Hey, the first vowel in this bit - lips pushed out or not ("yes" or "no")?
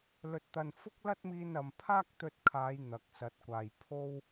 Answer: yes